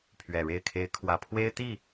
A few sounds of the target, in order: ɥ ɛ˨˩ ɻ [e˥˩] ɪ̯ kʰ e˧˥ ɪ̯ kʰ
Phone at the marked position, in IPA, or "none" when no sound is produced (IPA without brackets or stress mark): e˥˩